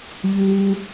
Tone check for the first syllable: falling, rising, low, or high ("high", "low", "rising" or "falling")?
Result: low